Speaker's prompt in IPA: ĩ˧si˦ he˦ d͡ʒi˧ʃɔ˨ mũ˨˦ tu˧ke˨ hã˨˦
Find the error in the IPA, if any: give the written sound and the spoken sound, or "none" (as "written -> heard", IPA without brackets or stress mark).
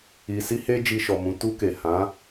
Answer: ĩ˧ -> i˧